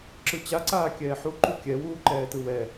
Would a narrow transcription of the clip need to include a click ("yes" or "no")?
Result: yes